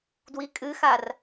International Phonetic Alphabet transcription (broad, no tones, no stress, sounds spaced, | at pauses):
d w i kʼ ɨ x a r